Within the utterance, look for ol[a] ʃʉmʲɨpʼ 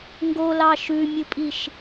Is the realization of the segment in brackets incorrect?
yes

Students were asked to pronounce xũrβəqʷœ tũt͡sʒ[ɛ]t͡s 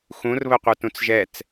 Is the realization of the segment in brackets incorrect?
no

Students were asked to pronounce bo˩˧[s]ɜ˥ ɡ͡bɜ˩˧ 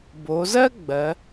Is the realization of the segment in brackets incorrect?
yes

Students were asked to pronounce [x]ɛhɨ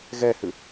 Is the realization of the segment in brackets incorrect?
yes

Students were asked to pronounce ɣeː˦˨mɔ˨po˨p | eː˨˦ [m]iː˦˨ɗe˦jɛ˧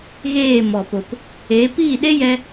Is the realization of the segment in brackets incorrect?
yes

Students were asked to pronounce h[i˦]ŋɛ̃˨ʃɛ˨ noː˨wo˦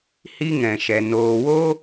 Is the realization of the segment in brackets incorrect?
no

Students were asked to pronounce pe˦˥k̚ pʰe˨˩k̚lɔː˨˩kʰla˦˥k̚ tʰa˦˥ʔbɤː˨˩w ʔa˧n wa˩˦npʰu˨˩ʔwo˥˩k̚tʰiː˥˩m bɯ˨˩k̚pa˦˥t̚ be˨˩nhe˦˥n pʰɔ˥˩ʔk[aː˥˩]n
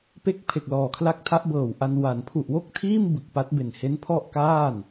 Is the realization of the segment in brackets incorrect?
no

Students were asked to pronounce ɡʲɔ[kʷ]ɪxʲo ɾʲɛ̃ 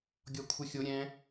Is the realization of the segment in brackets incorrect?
yes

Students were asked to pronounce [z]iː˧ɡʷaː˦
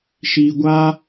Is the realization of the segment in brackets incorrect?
yes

